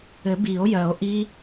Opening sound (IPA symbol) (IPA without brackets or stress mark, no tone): ɘ